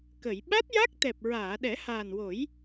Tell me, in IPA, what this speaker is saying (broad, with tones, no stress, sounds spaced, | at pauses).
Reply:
k ə˨˩˨ j ɓ a˦˥ t̚ j a˦˥ k̚ t̪ ɛ˨˩ p̚ ɹ aː˨˩˨ ɗ ɛ˨˩˦ h aː˨˩ n w o˨˩˦ j